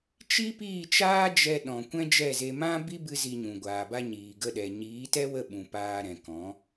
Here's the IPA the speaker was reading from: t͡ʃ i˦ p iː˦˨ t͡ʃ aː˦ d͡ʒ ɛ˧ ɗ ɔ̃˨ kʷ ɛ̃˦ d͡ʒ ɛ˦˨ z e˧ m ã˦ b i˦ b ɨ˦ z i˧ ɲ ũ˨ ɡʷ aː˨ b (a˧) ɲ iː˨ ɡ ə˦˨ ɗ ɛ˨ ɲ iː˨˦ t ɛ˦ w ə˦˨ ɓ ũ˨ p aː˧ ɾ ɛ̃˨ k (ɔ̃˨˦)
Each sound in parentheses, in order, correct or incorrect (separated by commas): correct, correct